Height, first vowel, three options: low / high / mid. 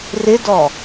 high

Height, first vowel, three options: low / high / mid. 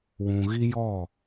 high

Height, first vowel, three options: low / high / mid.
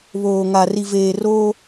mid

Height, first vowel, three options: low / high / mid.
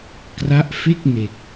low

